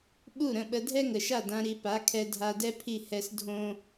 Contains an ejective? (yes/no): no